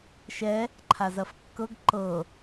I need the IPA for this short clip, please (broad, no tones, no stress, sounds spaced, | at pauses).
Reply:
ʃ ɛ | ǃʰ a z ɐ f kː ɤ ɡ ǃ ɤ